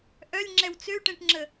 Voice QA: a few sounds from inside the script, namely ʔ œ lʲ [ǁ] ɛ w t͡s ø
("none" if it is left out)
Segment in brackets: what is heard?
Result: ŋ͡ǁ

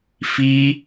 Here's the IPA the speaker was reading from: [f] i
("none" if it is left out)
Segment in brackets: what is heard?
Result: f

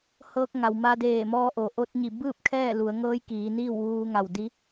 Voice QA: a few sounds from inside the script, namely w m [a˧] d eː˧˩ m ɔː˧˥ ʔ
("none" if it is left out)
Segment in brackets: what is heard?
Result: a˧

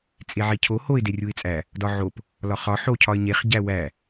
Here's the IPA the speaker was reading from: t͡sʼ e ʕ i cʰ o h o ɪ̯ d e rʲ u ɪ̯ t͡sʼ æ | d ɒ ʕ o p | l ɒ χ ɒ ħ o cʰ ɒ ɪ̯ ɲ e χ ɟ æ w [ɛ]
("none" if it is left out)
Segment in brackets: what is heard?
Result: æ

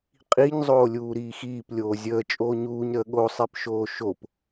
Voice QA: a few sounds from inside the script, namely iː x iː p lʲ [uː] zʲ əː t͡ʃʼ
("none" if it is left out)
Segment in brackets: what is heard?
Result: oː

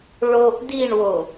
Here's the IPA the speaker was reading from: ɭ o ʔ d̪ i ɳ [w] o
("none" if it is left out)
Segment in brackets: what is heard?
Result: w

